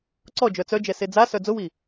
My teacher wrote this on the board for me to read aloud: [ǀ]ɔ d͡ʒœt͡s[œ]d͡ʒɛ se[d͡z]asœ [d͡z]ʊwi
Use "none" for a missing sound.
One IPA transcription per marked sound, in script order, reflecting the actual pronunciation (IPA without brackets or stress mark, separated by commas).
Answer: ǀ, œ, d͡z, d͡z